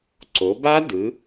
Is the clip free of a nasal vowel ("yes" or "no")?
yes